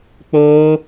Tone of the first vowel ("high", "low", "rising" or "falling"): high